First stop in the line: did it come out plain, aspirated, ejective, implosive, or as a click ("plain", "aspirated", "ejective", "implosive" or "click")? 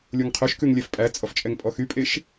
aspirated